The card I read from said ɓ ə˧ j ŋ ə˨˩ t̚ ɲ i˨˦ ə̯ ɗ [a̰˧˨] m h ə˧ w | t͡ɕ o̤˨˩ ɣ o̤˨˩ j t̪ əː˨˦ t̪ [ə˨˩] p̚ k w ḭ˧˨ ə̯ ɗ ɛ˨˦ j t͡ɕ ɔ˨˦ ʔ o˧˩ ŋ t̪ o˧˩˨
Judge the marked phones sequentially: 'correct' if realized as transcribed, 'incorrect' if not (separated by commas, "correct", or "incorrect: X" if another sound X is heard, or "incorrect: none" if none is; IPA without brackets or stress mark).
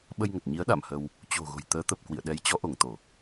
correct, correct